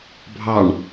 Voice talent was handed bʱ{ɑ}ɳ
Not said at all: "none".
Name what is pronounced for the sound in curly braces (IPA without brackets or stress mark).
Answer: ɑ